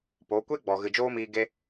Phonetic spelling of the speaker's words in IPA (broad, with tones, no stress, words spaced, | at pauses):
po˨˦ kʷe˦ɡ͡bɔ˨ ɣɨ˨d͡ʒoː˦miː˧ ɡe˦